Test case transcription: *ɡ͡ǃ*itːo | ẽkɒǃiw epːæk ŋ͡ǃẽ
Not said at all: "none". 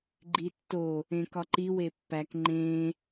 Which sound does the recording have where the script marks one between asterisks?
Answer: ɡ͡ǃ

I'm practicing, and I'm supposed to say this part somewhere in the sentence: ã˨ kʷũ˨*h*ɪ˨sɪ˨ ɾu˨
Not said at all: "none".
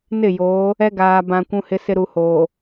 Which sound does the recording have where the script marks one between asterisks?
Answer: h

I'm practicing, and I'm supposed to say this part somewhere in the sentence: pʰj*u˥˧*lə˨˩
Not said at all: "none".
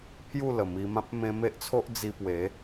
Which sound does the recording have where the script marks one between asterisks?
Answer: u˥˧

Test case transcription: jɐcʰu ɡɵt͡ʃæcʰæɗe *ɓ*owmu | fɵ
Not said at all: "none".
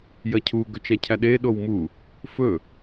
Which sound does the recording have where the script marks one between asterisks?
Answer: ɗ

